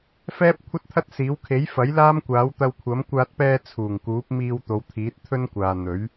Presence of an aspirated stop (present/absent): present